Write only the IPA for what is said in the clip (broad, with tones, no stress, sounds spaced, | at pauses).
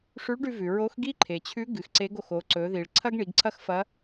ʂ ʉ˧˥ ɭ ɖ ʉ˧ v ʉ˩ ɹ o˧˥ x ɡ i˥ ǃʰ e˩ t͡ɕʰ ʉ˧˥ ɡ ɨ˩˧ x ǀ e˧˥ ɡ o˩ x o˩˧ ǀ ɵ˩˧ ð i˩ ɭ ǀʰ ɐ˥ ɡ ɳ i˩˧ ɡ ǀʰ ɐ˥ x f ɐ˧˥